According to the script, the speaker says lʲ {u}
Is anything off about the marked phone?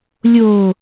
yes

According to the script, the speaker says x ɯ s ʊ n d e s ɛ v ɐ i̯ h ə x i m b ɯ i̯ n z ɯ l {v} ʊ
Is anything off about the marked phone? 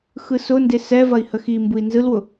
yes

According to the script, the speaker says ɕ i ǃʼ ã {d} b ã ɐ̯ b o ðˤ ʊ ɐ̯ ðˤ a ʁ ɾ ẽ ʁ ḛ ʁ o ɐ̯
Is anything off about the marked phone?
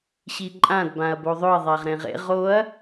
no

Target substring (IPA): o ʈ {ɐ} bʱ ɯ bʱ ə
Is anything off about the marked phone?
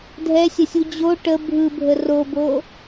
yes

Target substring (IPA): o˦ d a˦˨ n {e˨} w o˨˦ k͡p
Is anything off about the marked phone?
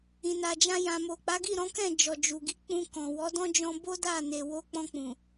no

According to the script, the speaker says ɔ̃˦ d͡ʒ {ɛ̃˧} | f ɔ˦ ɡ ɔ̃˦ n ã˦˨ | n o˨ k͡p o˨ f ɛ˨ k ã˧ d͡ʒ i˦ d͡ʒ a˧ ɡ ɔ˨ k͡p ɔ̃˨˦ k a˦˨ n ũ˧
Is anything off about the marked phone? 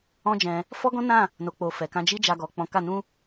no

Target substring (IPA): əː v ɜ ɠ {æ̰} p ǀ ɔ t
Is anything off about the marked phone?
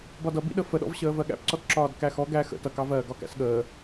no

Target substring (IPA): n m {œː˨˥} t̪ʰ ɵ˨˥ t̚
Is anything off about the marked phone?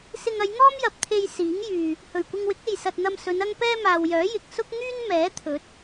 yes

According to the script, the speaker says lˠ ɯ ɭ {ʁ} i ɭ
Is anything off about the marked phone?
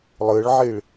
yes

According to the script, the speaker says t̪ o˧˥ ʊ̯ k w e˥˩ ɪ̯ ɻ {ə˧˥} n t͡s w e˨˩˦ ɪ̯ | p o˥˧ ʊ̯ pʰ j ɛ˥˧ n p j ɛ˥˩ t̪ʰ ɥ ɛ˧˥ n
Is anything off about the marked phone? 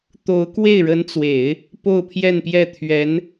no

